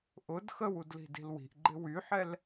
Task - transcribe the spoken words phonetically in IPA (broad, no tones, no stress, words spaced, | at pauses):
ʔʊd xəwudli̤di̤l wi̤ʔɡ͡ǃɪ wyħɛl